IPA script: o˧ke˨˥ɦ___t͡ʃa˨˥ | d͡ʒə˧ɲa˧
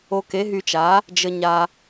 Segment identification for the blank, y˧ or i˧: y˧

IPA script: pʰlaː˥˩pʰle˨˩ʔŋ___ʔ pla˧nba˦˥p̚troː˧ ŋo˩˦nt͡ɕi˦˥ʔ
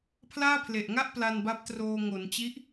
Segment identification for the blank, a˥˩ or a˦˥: a˥˩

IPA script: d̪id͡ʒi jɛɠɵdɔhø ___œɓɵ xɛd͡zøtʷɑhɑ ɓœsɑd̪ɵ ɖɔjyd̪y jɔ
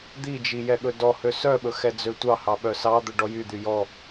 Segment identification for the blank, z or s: s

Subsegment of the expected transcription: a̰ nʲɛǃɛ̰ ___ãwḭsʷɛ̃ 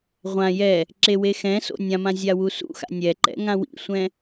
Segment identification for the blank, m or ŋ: ŋ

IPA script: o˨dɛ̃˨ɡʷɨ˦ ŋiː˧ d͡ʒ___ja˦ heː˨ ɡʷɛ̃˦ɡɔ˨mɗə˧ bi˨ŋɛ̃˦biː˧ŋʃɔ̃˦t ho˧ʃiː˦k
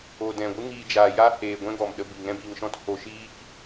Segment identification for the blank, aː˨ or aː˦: aː˨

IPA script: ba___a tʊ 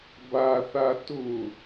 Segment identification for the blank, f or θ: θ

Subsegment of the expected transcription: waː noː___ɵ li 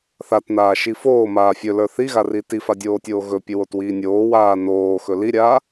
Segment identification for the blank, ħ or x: x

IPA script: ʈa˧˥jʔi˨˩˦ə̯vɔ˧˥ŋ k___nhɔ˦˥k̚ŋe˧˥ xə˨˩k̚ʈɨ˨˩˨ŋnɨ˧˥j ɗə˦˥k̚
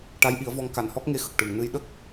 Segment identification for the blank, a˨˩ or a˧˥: a˨˩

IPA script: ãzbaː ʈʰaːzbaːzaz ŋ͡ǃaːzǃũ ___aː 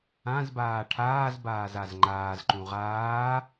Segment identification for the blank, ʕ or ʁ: ʁ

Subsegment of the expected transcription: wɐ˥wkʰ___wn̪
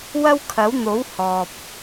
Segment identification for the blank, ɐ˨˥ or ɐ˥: ɐ˨˥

